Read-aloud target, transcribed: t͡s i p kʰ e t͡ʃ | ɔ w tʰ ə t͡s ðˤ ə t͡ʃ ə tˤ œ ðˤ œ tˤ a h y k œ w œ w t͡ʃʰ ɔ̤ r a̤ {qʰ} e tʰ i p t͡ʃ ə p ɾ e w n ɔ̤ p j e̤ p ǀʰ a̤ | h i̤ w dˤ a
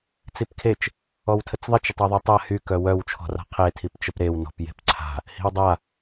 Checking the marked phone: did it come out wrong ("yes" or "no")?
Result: no